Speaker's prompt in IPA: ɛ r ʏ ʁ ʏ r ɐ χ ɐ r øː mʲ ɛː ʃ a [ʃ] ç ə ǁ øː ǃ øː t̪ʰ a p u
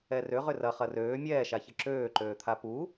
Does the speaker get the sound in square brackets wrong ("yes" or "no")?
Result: yes